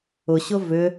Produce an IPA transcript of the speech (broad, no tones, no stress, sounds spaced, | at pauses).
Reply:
ʊ ɕ ʊ v ʏ